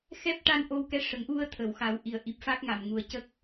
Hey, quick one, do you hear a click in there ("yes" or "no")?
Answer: no